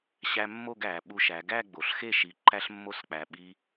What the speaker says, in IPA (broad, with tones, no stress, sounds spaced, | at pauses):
ɕ æ˧ mː o˥˧ ɡ æ˩˧ ɓ u˧ ʃ æ˩˧ ɡ æ˥˧ ɡ͡b o˩˧ ɬ x e˥˧ ʃ i˧˩ ǃ æ˥ ɬ mː o˥ s k͡p æ˧ ɓ i˧